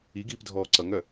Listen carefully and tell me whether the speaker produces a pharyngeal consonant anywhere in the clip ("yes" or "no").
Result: no